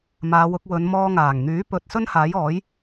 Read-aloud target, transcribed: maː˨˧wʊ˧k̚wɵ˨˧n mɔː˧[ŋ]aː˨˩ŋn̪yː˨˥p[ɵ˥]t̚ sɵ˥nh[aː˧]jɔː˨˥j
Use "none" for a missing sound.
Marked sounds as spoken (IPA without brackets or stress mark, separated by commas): ŋ, ɵ˨, aː˨˥